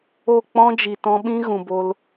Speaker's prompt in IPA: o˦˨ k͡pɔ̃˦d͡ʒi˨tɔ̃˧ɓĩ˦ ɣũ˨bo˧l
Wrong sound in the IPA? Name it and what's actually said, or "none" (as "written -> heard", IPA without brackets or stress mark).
none